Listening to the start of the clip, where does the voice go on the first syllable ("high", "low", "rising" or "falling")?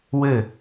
falling